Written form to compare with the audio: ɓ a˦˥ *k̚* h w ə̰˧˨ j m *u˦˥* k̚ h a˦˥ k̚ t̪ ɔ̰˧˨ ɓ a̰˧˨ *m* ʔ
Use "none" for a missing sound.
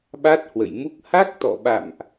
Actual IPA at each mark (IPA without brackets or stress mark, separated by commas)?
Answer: t̚, u˦˥, m